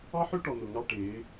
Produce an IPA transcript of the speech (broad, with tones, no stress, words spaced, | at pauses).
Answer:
ɑ˦ħø˦ʈɔ˨ n̪ʊ˨ŋɑ˦ʈɪː˨˦